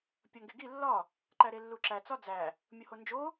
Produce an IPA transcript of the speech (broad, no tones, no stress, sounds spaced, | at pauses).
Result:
pʲ ɒ ŋ ɡ e ɡ i lː ɒ | ǃ æ ɾ e lː u ǁ æ t͡s ɒ d͡z æ | mʲ o h o n d͡ʒ o